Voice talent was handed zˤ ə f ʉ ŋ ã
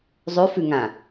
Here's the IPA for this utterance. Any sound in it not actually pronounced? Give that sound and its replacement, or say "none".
ə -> ʉ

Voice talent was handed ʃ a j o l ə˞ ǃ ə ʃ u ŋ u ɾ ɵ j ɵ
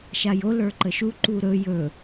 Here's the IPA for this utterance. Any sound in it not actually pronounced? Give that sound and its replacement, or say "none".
ŋ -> ǃ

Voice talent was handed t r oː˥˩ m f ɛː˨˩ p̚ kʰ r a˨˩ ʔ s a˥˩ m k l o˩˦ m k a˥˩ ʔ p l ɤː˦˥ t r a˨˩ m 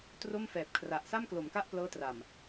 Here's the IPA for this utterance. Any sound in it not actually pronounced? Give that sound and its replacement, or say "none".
oː˥˩ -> o˥˩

